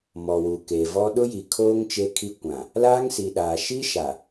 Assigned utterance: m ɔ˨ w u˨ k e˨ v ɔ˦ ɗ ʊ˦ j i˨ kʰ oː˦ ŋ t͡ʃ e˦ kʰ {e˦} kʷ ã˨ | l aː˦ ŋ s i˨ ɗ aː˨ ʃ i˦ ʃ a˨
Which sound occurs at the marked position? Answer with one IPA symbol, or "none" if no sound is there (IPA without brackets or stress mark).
i˦